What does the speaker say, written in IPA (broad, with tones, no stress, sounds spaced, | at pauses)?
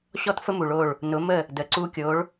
ɕ ɔ˥ t f ə˥ m u˩ ɭ o˥˩ ɭ | n ʊ˩˥ m ə˥˩ | d ə˩ ǀ u˧ kʲ o˩˥ ɭ